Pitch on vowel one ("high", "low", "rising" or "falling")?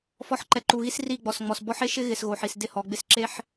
rising